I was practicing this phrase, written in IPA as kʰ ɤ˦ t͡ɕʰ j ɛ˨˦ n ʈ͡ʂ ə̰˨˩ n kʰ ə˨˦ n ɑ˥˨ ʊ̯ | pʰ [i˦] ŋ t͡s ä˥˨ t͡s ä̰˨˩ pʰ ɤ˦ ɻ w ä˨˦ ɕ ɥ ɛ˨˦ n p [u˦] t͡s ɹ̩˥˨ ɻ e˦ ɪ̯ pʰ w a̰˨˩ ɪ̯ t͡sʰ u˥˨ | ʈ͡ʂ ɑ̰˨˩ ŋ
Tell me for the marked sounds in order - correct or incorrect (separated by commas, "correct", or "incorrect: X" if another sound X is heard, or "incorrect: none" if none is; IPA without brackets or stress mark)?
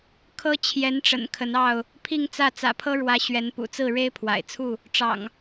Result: incorrect: i˥˨, incorrect: ṵ˨˩